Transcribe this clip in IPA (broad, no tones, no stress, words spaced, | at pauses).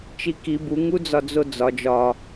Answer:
t͡ʃiki bu ŋud͡zɒd͡zod͡zɒ d͡ʒɒ